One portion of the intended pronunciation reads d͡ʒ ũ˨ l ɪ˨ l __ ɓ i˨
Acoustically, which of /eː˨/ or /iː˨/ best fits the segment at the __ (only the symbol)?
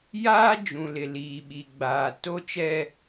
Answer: iː˨